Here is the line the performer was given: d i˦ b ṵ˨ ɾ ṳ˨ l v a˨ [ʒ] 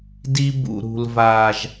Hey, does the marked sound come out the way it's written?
yes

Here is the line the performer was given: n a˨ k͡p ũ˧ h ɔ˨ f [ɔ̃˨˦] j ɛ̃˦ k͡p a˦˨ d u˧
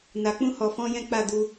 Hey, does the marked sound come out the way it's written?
yes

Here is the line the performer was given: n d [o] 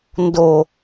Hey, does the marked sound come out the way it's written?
yes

